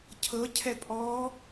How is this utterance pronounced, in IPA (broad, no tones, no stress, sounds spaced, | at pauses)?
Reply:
cʰ ɤ cʰ ɛ pʼ ɔ